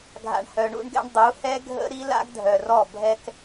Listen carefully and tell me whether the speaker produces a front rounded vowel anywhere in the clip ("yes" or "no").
yes